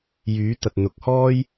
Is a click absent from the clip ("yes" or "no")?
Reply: yes